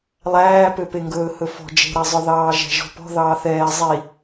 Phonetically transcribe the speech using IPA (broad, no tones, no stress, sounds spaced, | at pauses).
lˠ æː p ø p e ŋ ɡ ɵː h ɵ f ɔ̤ d͡ʒ e̤ ɾ æ zˤ œ ð ɑː ʒ æ̤ ʒ ɔ̤ p ɔ̤ ð ɑː θ ɛː zˤ i